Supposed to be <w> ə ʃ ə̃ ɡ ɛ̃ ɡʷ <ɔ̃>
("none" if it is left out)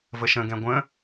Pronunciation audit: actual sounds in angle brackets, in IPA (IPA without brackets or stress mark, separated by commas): v, ə̃